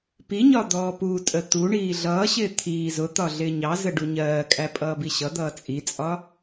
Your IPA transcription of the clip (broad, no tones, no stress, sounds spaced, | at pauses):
p i ɲ ɒ d̪ ɔː p u tʼ ə t̪ u ɳ iː ɮ ʌː ɕ ɪː t̪ʰ iː z ʊ t̪ ɒ ɮ ɪː ɲ ɑ z ə ɖ u ɲ ɜː kʼ æ pʼ ʌː b i ɕ ʌ d̪ ʌː t͡sʼ i t͡sʼ ɒ